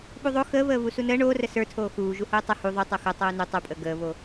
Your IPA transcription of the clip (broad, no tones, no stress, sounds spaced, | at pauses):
ɓ u ðˤ o x əː β əː β u s u n əː ɳ oː r ə s ə˞ tʰ oː x uː ʒ u h oː tˤ ə h u ðˤ u tˤ o x o tˤ oː n u tˤ u pʼ əː ɡ əː β o